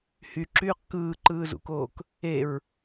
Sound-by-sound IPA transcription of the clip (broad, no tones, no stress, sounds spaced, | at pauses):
h y ǁ yː q k ɯː ǃ ɯː z ṵ k oː k | e ɹ